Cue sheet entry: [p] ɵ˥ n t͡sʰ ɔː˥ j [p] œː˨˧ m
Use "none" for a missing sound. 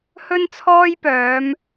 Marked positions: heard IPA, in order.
h, p

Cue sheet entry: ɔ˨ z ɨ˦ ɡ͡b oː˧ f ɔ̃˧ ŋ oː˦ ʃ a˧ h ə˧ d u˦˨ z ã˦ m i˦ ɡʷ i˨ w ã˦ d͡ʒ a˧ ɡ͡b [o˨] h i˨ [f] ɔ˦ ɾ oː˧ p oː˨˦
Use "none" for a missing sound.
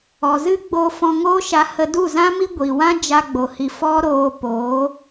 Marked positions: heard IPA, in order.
o˨, f

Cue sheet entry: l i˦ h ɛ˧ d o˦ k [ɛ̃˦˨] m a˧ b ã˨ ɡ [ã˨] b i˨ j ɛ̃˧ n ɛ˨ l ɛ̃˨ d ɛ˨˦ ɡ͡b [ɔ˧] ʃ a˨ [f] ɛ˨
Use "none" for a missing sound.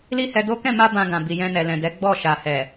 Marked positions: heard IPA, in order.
ɛ̃˦˨, ã˨, ɔ˦˨, h

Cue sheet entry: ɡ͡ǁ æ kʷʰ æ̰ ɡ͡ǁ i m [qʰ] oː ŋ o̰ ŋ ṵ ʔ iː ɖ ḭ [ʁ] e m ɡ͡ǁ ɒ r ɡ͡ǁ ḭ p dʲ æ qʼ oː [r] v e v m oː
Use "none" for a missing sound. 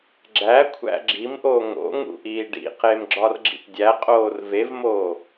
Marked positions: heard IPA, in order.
ʔ, q, r

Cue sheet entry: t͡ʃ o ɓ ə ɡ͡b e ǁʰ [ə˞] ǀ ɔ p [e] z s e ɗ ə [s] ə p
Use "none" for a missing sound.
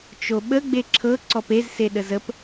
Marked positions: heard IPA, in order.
ɤ, e, z

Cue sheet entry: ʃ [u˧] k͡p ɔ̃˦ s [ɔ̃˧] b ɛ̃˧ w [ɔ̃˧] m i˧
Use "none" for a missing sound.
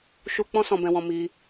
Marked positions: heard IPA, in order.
u˧, ɔ̃˧, ɔ̃˧

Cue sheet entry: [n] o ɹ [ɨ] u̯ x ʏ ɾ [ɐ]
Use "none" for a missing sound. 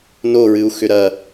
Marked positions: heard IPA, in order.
n, ɨ, ɐ

